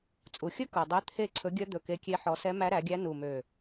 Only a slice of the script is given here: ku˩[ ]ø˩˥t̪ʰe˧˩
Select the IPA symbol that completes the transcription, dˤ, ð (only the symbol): dˤ